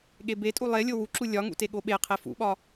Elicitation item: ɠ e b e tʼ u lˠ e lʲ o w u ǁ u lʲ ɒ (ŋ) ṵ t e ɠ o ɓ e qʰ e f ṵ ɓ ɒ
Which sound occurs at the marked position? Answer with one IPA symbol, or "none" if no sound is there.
ŋ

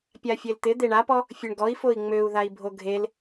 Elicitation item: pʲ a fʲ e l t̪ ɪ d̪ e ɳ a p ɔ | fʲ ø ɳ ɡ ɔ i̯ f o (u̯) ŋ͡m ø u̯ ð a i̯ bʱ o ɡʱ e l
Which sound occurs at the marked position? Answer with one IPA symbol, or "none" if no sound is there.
i̯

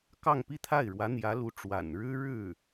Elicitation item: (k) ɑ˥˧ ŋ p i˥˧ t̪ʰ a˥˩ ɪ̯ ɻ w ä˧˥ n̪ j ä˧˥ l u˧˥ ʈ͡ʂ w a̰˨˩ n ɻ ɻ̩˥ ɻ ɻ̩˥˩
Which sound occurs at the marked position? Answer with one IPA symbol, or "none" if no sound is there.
k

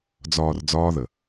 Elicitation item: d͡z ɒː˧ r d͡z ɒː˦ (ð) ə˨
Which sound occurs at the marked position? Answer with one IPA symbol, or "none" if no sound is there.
ð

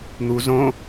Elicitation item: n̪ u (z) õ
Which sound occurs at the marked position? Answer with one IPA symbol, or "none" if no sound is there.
z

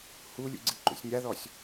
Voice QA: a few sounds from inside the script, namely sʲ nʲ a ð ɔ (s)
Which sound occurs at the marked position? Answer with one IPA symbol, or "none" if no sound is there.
sʲ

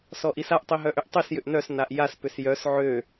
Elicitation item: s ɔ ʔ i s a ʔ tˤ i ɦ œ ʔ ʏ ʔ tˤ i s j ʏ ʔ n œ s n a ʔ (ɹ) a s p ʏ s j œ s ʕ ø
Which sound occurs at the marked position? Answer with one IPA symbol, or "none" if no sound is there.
j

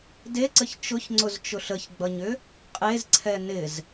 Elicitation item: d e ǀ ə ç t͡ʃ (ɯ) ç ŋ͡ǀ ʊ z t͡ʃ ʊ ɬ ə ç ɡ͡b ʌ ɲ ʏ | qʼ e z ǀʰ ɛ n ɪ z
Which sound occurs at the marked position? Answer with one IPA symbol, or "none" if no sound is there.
ʊ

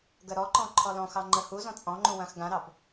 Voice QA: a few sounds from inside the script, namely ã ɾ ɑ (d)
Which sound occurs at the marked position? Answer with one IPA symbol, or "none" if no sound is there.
b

